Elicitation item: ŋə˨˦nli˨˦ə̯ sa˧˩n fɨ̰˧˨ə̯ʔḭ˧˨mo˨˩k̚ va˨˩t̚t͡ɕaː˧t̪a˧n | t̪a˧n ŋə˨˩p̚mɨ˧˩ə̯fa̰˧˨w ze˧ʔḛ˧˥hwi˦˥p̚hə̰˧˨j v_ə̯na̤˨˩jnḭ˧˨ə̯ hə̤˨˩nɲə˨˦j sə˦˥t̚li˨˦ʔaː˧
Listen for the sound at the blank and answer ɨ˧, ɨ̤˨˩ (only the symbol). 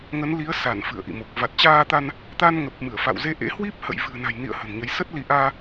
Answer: ɨ̤˨˩